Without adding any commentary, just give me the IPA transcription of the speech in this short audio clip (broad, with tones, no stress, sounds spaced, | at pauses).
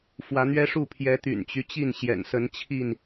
f w ä˨˦ n̪ ɥ ɛ˦ ʂ u˥˨ pʰ j ɛ˨˦ t̪ y̰˨˩ n t͡ɕ y˦ t͡ɕ i˥˨ n ɕ j ɛ̰˨˩ n s ə˨˦ n t͡ɕʰ i˥˨ n